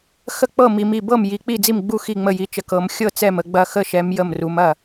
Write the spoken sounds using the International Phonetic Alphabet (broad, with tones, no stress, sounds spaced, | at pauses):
x ə˥˩ k͡p ɤ˥˩ m i˨˦ m i˥˩ b ɤ˥˩ m j i˨˦ k͡p i˥˩ d͡z i˥˩ m ɡ͡b u˥˩ x i˥˩ ŋ͡m ə˥˩ j i˨˦ t͡ʃ ə˨˦ k ɤ˨˦ m xʲ ɤ˥˩ t͡s ɛ˥˩ m ə˨˦ ɡ͡b ɐ˥˩ x ə˥˩ ʃ ɛ˨˦ m j ə˥˩ m r u˨˦ m ɐ˥˩